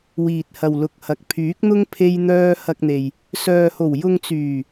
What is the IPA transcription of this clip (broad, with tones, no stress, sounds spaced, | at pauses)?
w iː˨ t̚ h ɐ˨ w l ʊ˨ k̚ h ɐ˨ k̚ pʰ yː˨˥ k̚ n̪ ʊ˥ ŋ pʰ e˥ j n̪ œː˥ h ɐ˧ k̚ n̪ e˨ j | s œː˨ h o˨˩ w j ʊ˧ ŋ t͡s yː˨˩